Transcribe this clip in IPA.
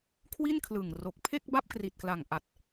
kʰ w i˥˩ n kʰ l ɯ˨˩ ŋ r o˨˩ k̚ pʰ e˥˩ k̚ b a˥˩ p̚ k r i˨˩ t̚ k l a˨˩ ŋ ʔ a˨˩ t̚

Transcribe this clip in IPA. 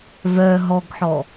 v œ ɦ ɔ ɡ ħ ɔ

